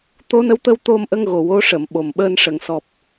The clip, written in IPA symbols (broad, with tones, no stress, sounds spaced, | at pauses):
t̪ o˧˥ n ə˧˥ w t̪ ə˧ w t̪ o˧ m ʔ ə˧ ŋ ɣ o˨˩ w o˧˥ ʂ ə˨˩˨ m ɓ o˨˩ m ɓ əː˧ n ʂ ə˨˩˨ ŋ s ɔ˨˩ p̚